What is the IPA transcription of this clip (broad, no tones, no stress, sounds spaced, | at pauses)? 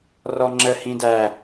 r ɔ ŋ͡ǁ ə h ĩ d æ